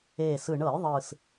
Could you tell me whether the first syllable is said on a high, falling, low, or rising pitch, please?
low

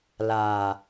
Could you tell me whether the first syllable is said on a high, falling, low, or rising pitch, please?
low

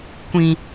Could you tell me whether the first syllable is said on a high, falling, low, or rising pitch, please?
high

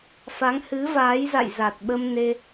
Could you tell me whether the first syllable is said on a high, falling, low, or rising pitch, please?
rising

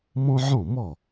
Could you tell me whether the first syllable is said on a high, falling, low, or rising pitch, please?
high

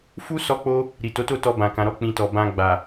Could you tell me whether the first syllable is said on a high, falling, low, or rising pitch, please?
high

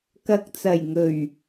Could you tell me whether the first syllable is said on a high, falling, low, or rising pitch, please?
low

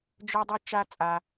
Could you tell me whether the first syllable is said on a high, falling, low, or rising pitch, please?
high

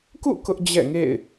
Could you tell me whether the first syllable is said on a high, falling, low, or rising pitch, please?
falling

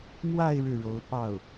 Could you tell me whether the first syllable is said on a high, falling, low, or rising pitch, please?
falling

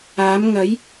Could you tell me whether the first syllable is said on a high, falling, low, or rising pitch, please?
rising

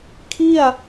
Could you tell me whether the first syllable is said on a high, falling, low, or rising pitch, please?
falling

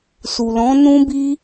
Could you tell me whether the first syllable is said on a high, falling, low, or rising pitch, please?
low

